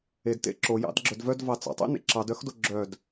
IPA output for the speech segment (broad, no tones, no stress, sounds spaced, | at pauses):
e d t ḛ ǁ o j ɑ̰ d ɡ͡ǁ œ d v œ d v ɑ t͡s ɑ̰ tˤ ḛ n ḛ ǁ ɑ d œ x d o ɡ͡ǁ œ d